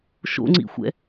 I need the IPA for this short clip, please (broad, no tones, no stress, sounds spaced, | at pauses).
ʃ o̰ ŋ͡ǀ ḭ xʷ ɛ̰